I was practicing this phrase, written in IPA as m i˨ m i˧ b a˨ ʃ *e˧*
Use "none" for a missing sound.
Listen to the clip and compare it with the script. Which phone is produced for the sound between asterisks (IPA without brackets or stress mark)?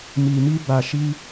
i˧